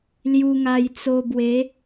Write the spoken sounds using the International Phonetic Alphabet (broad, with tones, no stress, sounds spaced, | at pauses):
l j u˧ ŋ a˧ j t͡s o˧ b w e˨˦